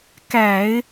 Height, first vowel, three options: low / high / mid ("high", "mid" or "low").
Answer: low